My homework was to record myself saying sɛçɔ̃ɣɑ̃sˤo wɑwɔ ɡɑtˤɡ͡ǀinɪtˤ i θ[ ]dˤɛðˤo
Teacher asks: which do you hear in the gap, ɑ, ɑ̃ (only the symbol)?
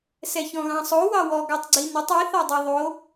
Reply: ɑ